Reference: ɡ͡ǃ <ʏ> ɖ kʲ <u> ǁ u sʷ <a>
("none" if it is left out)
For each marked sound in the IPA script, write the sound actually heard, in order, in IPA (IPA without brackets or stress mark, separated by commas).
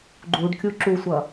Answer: u, u, ʌ